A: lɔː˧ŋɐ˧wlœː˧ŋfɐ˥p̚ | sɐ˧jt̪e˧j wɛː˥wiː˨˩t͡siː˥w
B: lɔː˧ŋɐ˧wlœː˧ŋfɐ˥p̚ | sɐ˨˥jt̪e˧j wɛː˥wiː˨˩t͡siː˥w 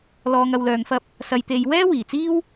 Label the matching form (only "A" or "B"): A